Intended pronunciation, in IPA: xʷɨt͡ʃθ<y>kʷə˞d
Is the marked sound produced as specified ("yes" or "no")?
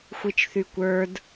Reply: yes